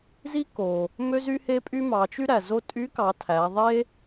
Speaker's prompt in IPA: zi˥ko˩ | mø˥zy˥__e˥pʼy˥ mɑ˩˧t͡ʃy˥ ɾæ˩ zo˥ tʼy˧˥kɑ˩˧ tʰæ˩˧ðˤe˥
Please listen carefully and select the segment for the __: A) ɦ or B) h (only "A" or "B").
B